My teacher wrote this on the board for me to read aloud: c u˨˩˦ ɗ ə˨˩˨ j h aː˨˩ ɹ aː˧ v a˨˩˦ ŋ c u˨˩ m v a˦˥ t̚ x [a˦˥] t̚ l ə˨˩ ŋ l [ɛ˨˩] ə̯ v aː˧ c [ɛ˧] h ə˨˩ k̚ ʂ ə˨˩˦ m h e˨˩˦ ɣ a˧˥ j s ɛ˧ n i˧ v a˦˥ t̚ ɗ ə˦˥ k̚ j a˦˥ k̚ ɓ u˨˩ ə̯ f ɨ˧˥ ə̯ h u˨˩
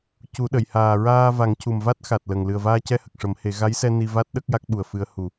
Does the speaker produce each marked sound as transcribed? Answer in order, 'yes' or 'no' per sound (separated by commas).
no, no, yes